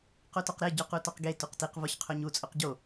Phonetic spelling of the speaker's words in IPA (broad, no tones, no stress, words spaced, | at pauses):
qotɒqɾe ɟoqutɒqɡe tuqtiq vɒçqʰoɲu t͡sʼoqɟo